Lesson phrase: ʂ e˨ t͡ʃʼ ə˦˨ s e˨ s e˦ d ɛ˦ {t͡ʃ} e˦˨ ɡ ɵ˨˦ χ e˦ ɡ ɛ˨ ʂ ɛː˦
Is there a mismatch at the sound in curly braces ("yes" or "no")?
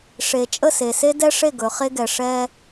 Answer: yes